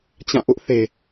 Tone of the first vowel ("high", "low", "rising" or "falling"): falling